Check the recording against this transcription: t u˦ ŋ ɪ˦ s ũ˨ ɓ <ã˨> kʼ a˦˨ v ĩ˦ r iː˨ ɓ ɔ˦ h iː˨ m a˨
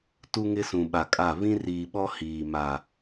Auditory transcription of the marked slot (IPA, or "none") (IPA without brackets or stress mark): a˨